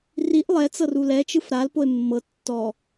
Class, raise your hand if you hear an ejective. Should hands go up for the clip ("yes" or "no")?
no